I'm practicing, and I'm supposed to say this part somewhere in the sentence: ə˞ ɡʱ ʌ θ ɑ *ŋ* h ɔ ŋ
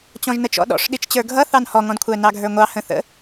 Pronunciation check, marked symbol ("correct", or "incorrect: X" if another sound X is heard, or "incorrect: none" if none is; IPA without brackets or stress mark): incorrect: n